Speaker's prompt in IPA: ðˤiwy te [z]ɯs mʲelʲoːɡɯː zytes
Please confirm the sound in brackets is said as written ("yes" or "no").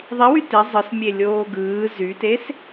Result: no